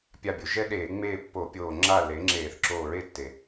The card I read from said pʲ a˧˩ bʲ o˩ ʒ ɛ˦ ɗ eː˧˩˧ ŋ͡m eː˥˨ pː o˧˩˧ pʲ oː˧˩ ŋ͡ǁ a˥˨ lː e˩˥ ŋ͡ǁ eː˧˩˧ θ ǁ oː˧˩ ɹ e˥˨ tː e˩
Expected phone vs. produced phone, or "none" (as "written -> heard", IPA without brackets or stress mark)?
none